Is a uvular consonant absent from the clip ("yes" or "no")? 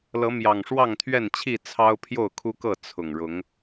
yes